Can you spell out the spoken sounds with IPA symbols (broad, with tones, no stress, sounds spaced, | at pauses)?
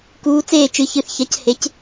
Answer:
k uː˧˥ t͡s eː˦˨ t͡ʃ ɨ˦˨ ç ɨ˦˨ θ ç ɐ˧˥ c h e˧˥ c